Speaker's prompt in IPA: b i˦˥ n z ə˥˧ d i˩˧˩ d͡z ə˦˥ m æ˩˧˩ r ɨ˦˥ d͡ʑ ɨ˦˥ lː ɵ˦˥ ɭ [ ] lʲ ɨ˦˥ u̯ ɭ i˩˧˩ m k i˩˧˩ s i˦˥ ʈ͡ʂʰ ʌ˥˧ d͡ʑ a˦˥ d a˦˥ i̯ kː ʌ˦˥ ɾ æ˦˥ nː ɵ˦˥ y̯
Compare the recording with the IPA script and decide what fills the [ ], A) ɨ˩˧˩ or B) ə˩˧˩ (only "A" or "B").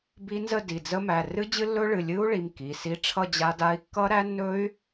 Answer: A